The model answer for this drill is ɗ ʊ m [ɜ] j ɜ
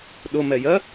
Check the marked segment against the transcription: incorrect: ɛ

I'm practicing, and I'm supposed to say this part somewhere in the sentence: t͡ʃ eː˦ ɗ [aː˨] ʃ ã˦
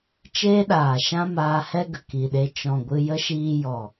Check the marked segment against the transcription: correct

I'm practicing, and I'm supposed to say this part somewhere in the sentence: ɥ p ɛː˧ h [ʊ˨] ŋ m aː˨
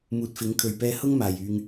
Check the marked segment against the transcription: incorrect: ʊ˥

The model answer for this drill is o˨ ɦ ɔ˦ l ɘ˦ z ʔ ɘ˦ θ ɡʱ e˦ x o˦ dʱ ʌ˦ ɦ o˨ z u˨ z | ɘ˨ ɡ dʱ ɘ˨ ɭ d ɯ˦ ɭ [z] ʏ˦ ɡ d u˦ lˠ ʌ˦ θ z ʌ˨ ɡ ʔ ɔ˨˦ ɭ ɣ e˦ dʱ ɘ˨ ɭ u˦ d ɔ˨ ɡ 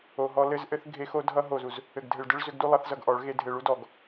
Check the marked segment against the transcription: correct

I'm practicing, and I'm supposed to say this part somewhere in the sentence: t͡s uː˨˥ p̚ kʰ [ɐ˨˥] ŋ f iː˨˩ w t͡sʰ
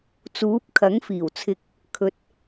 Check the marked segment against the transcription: correct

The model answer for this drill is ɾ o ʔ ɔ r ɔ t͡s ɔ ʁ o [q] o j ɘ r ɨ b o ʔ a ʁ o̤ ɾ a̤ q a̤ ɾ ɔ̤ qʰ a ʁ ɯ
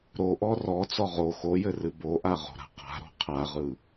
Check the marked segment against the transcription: incorrect: x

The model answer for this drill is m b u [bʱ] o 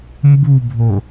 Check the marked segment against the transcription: correct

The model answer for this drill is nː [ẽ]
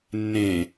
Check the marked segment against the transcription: correct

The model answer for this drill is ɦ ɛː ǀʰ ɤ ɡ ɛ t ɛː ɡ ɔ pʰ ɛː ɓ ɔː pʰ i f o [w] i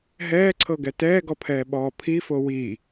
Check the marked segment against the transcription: correct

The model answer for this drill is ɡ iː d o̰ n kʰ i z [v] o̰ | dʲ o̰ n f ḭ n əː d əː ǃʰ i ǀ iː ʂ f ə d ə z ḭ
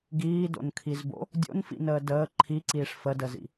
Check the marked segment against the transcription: incorrect: b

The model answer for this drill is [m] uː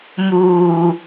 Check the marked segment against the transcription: correct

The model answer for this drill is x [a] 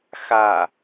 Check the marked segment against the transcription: correct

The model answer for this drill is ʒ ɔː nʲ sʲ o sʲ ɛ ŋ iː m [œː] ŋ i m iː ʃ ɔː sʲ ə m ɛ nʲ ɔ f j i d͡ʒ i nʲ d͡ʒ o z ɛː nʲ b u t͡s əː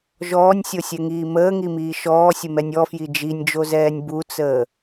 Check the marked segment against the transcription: incorrect: əː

